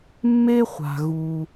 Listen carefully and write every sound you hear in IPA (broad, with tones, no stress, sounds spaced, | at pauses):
mː e˥ χʷ a̤˩ ɣ u˩